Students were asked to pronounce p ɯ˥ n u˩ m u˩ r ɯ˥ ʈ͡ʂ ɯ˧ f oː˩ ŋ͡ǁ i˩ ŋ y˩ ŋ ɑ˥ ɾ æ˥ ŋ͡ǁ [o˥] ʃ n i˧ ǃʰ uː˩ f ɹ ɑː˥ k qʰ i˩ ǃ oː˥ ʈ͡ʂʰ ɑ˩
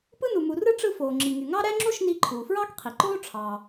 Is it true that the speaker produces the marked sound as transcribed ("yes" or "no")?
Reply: yes